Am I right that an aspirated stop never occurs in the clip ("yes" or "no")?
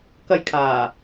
no